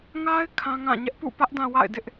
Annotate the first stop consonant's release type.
aspirated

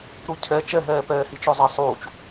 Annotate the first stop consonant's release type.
aspirated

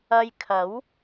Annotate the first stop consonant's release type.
aspirated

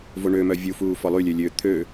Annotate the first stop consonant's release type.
aspirated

